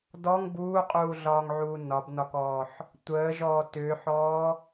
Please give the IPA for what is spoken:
dɔŋ buːqʼuːɮɒːŋʕuː nɒbnɒkɔːħ | tʷəːʒɔː tʏːħɔː

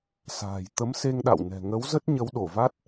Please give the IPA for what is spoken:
sa̤ː˨˩j t̪ə˨˦mse˧ŋɗa̰˧˨wnɛ̤˨˩ ŋə˨˦wzə˦˥t̚ ɲə˨˦wɗo˧˩va˦˥t̚

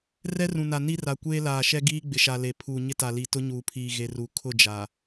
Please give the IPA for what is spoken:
rɛ˦rũ˨na˨ ni˦ra˨ kʷeː˦laː˨ ʃɛ˦ɡiː˦ɡ͡bɪ˨ʃa˨ le˨ pʰuː˨ɲɪ˦ta˨ li˨ tʊ˦ɲuː˨pʰiː˨ɣe˨ ru˨ kʰʊ˦˨d͡ʒa˨

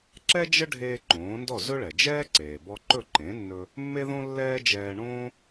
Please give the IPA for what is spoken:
ǁɛ˥d͡ʒə˥ɖʱeː˧ ǃõː˩˥ndɔ˥˩zɵ˥ ɭɛ˩d͡ʒɛː˥ ǀeː˩bɔ˧ǃɵ˥˩ ǃẽ˩˥nːɵ˧ | mːe˥ðõ˥ lːɛː˥d͡ʒɛː˧ ɳõː˥

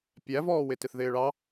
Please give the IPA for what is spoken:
pʲævɔːwɪ tɪθðɪːɭɑ

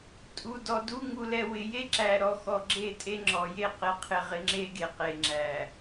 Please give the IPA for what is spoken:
tʼu˨dɔ˨du˦ ŋu˨lɛ˨ wɪ˨je˦ǁæ˨ ɾɔ˨xɔ˨ ɡ͡ǁe˦˨tʼe˦ŋ͡ǁɔ˨je˦˨ qɪ˨˦qʰɪ˨ʁɪ˨ ŋ͡ǁe˦ɡe˨qe˨ŋ͡ǁæ˨

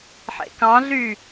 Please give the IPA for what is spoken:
ħḛkɑ̃ɮy

